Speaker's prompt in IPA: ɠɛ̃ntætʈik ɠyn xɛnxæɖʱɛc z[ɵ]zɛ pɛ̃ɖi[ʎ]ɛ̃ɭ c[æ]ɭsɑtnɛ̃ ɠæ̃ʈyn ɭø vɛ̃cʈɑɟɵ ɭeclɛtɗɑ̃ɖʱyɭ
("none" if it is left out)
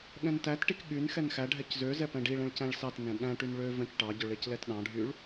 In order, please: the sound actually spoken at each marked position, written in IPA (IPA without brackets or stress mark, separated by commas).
ø, ɭ, æ̃